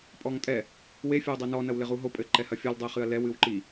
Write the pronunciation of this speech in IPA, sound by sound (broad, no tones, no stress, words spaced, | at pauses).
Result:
pʼɔŋtʼɛ | we fʲɔwdˤenɔ nɐwlɘʁuɦo pʼɘ ǃɛhɐfʲɔl dˤɛχɨɐ̯lɛw ɨwǃi